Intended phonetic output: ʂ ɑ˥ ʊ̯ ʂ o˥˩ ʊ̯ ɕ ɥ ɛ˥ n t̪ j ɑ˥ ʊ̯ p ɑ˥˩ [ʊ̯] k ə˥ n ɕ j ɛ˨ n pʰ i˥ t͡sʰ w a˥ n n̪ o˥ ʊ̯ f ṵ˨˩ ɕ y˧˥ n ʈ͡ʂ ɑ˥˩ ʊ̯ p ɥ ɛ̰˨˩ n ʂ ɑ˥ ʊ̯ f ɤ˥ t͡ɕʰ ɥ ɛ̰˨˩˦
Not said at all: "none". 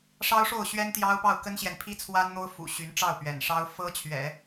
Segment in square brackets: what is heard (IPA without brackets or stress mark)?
ʊ̯